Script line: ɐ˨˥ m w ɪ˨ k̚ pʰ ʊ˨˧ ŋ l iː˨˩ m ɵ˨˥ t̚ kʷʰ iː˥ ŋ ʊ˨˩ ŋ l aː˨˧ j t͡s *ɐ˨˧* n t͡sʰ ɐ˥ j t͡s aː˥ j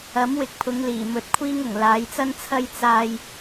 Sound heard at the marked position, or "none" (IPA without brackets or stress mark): ɐ˥